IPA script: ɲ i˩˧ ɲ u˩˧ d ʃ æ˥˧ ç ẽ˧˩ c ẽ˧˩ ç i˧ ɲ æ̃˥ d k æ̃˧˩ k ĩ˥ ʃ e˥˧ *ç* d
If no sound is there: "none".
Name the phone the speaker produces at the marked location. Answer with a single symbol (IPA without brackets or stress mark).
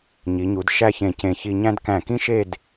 none